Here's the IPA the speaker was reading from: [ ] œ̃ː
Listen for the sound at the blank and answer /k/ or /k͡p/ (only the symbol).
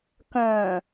k